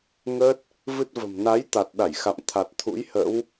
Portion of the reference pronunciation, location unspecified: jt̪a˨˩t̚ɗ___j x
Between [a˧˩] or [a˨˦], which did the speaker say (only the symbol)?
a˧˩